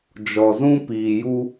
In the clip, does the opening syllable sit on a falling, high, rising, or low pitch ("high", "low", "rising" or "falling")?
low